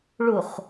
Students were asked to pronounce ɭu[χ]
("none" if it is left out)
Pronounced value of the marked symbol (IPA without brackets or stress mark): χ